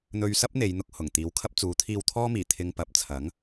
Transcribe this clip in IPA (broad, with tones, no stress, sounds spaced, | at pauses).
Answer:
n̪ ɵ˧ ɥ s ɐ˥ p̚ n̪ e˨˧ j n̪ ʊ˧ k̚ h ʊ˨˩ ŋ t̪ iː˨˧ w kʰ ɐ˥ p̚ t͡s uː˨˥ t̪ʰ iː˧ w t̪ʰ ɔː˥ m iː˨˩ t̪ʰ ɪ˧ ŋ p ɐ˨ p̚ t͡sʰ ɐ˨˥ ŋ